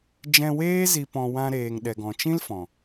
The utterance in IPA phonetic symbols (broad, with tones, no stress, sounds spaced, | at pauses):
d͡ʒ ɛ̃˧ w eː˦ z i˧ p ɔ̃˧ w ã˧ ɾ eː˨ ŋ ɗ ɛ˨ ɡ ɔ̃˨ t͡ʃ ĩ˦ l f ɔ̃˨